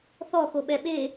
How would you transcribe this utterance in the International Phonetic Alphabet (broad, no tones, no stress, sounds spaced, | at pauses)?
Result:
θ ɔ x o ɓ ɛ ɓ e